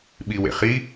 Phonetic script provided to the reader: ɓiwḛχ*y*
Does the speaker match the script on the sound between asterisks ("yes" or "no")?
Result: no